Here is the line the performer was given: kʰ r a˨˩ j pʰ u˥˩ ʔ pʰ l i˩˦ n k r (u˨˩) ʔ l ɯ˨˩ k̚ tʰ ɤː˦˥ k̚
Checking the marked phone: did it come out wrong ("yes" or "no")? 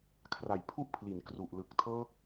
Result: no